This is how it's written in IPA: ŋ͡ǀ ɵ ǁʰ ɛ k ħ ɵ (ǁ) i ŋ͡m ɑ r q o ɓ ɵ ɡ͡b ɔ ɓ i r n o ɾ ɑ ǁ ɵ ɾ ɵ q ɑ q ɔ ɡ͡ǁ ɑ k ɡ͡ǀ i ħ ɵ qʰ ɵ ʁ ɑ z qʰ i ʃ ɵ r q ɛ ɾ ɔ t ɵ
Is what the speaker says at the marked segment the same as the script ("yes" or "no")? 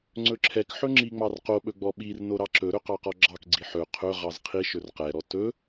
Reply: no